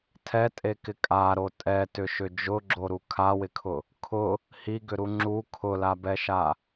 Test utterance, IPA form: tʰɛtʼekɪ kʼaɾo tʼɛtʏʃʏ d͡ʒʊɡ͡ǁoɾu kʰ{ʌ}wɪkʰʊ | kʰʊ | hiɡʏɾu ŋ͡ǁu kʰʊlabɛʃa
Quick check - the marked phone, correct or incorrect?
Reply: incorrect